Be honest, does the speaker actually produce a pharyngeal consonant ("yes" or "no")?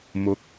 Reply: no